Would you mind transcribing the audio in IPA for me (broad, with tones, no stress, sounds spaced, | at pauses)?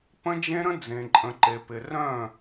p ə̃˦ d͡ʒ ẽ˦ ɾ ə̃˦ d͡z ẽ˨ ǃʼ ə̃˨ ǃ e˨ p ɪ˨ r œ̃˦˨